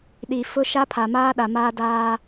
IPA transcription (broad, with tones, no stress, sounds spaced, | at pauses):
ɗ i˨ f ʊ˦ ʃ a˦ pʰ a˨ m aː˦ ɗ a˨ m aː˦ d aː˦